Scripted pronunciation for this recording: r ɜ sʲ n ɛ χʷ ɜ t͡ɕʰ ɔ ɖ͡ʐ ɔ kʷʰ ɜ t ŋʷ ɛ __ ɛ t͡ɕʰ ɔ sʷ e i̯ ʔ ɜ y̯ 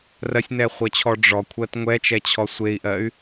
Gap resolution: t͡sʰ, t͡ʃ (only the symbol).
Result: t͡ʃ